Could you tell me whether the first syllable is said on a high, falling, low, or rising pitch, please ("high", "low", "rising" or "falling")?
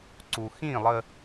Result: low